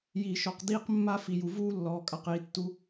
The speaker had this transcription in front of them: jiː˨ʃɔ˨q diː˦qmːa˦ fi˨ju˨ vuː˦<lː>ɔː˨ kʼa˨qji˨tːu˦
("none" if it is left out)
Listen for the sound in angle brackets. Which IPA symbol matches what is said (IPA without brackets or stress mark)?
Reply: lː